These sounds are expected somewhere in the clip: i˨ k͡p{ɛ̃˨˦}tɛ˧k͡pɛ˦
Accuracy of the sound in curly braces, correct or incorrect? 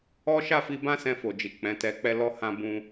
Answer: correct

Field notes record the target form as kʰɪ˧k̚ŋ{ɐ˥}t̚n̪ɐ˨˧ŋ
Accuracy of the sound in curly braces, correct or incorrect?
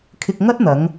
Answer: correct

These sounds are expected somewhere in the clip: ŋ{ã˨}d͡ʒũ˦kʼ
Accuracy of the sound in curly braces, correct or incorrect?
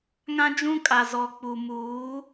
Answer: incorrect: ã˦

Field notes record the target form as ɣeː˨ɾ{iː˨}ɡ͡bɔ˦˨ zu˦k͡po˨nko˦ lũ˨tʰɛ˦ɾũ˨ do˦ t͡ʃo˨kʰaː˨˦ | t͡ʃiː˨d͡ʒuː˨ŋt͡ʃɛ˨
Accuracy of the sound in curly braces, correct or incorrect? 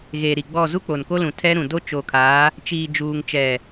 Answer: incorrect: i˨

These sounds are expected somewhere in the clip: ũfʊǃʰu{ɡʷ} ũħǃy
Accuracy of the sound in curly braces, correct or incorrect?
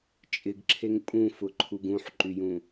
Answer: incorrect: ɡ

